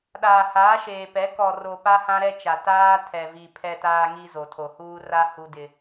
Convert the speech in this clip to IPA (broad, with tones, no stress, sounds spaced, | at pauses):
ɗ aː˨ h aː˨˦ ʃ eː˨ p ɛ˨˦ k ɔ˨ r o˨ p a˦ h ã˦ ɾ ɛ˦ t͡ʃ a˨ t aː˦ tʰ ɛ˨ v i˨ pʰ ɛ˨ t aː˨ ŋ i˨ z o˨ tʰ o˨ h uː˦ r a˦ h u˦ d ɪ˦